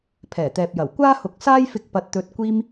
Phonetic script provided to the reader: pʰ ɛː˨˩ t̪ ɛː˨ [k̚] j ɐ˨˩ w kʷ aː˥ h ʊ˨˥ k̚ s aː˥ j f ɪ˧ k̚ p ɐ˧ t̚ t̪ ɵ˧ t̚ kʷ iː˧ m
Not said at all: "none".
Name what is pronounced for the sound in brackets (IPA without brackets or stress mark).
p̚